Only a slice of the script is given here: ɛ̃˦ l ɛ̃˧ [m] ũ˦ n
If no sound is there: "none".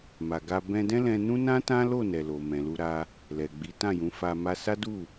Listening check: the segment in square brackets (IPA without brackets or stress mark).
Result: n